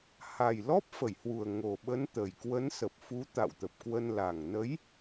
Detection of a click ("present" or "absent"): absent